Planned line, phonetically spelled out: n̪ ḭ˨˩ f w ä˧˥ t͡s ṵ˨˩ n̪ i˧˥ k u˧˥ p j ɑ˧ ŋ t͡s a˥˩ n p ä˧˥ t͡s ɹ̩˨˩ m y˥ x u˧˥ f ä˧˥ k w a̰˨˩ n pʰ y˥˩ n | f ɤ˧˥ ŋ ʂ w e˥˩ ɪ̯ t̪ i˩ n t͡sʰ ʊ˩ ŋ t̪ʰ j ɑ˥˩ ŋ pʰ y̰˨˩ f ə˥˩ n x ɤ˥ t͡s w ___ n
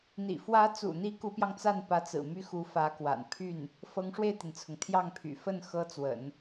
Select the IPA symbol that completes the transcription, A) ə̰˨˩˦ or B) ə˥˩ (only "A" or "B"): A